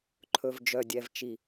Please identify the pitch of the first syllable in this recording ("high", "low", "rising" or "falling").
low